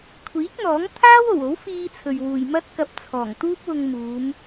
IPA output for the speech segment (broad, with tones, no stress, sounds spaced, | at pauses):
kʷʰ iː˨˥ k̚ n̪ ɔː˨˥ ŋ t̪ʰ aː˥ w o˨˩ w o˨˥ w f iː˧ t͡sʰ ɵ˨ ɥ w uː˨ j m ɐ˥ t̚ k ɐ˧ p̚ t͡sʰ ɔː˨˩ ŋ t̪ uː˥ p̚ w ʊ˧ ŋ m uː˨˧ m